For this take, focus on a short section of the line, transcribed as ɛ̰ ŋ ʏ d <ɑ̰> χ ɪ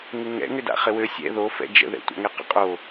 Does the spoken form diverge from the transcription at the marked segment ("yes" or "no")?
yes